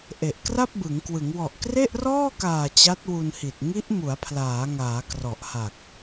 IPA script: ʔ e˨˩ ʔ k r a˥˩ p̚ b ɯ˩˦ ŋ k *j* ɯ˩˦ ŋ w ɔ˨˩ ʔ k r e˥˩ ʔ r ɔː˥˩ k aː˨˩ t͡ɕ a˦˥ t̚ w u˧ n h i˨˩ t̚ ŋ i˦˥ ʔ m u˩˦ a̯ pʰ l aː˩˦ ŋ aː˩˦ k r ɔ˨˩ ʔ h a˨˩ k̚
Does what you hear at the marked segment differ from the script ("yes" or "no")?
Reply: yes